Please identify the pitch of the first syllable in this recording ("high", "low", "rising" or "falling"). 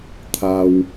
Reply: low